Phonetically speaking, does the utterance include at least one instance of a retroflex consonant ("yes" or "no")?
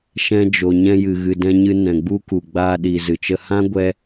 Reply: no